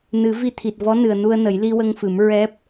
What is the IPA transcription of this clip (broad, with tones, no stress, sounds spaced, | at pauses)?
n ɨ˨˩˦ v i˧ t̪ʰ i˨˩ t̚ v ɔ˧˥ n ɨ˨˩ ə̯ n u˧ ə̯ n ə˨˩˦ j l i˧ w ə˧ ŋ f ɨ˨˩˦ m ɹ ɛ˦˥ p̚